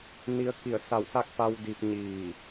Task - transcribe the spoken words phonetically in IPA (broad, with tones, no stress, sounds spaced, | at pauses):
n i˧ ə̯ k i˧˩ ə̯ s a˧˩ w s a˥˨ k̚ p a˧ w d i˧ p̚ ɲ iː˧˩